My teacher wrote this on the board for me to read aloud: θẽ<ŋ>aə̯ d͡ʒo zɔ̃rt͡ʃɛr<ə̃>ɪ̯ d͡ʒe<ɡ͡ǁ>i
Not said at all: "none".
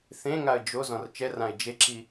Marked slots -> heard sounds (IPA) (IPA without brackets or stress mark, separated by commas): ŋ, ã, ǁ